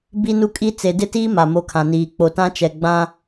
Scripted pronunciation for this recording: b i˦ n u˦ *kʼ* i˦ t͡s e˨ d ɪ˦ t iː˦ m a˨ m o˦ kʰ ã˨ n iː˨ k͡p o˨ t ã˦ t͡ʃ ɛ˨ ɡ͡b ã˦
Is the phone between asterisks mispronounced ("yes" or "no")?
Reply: no